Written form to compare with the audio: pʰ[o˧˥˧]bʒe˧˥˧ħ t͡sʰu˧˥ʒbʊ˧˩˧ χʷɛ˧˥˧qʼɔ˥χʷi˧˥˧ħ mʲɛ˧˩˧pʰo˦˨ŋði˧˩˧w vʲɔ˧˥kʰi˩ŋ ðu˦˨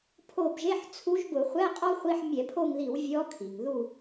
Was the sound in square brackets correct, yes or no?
no